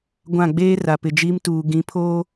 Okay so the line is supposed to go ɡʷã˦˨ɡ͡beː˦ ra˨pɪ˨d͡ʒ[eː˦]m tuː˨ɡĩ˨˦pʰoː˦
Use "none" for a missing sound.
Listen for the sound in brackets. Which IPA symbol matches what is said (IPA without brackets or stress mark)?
iː˦